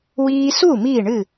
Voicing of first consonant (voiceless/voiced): voiced